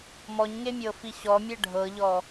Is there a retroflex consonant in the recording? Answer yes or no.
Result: yes